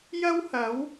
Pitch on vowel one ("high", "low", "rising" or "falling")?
high